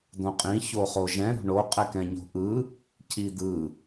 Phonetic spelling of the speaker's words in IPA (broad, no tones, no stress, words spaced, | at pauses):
d̪õqʼĩ çoχoʒɛ̃ ɾo̤ɳo qʼɛkɛ̃ɲo̤ʔɯ | cʰid̪ɯ